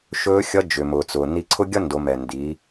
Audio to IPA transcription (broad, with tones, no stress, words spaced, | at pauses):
ʃɵː˧˥ xʲʌ˧˥ d͡ʒʏ˩mʊː˩t͡sʊː˩ ni˧ǀʰʊ˥ ɡʲʌ˥ndo˩˧ mɛ˩ndi˩˧